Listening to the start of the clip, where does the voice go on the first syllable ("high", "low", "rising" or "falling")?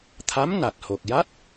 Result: rising